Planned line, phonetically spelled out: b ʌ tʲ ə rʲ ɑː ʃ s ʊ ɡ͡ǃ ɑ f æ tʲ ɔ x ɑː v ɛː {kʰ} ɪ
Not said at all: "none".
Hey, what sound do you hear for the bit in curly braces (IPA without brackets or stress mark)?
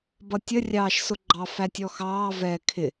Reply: kʰ